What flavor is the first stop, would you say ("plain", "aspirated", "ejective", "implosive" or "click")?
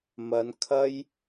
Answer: aspirated